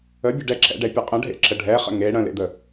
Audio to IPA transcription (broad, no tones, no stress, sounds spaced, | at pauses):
ə bʲ ə ɖ ɛ ǁ ɛ̰ ɖ ɛ pʲ ə qʼ ə̃ ɖʱ ḛ ǁ ə ɖʱ ɛ χ ə̰ ŋ e ɽ ə̃ l ḛ d̪ ə